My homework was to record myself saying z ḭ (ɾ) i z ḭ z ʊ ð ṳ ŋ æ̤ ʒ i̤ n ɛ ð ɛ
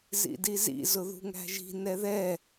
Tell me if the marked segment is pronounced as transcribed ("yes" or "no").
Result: no